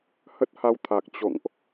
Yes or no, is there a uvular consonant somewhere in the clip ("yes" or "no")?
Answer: no